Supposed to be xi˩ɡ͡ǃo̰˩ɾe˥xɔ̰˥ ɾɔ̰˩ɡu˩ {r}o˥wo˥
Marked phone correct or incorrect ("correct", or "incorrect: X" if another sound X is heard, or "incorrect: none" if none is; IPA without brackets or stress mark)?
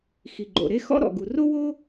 correct